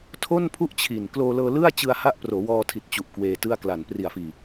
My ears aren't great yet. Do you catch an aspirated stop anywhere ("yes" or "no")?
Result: yes